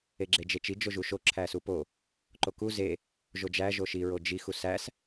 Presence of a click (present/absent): present